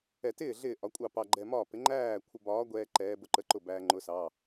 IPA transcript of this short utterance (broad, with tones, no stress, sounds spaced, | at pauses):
ɛ˧˩˧ t ɪː˥˩ ɮ ɪː˥˩ ʔ ɒ˨˥ kʷʼ ɑ˥˩ p ɑ˧ ɡ͡ǃ ɛ˧ m ɒː˥˩ p ɪ˨˥ ŋ͡ǃ æː˥˩ kʷʰ ə˧ b ɒː˨˥ ɡʷ ɛː˧ ǃ ɛː˨˥ b ʊ˧ ǃ ə˨˥ ǃ ʊ˥˩ b æː˧ ŋ͡ǃ ʊ˨˥ s ɑ˩˧˩